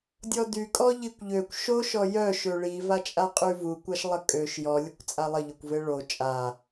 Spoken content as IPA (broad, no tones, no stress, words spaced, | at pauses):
dʲɔdy kʼɔʎikʷʎøkʷ ʃo ʃɔjœ ʃøɭi vat͡ʃʼaqʼyvu kʷaʃlˠəkʼøʃ jɔ lʲəkʷt͡sʼalˠə ʎɔkʷveɭo t͡ʃʼa